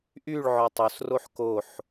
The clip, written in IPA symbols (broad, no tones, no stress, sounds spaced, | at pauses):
ʔ y ɭ ʕ ɔ tˤ o s r o ħ k o ħ